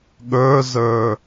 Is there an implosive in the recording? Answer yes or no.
yes